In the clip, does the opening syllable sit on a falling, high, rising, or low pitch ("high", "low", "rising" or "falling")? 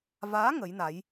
rising